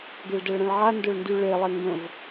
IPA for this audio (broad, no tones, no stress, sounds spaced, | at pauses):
ɡ e ɭ d ɛ ɭ ɾ ɛ̃ ɭ ʕ a n d ʊ ɭ n d y ɭ e lˠ e ŋ ɡ ə̃ v